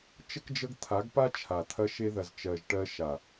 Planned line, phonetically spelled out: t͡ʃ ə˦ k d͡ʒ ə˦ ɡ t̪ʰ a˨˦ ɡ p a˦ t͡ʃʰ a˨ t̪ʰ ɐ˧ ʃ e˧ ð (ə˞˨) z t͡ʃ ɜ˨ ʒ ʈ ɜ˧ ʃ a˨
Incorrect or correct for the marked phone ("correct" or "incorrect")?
incorrect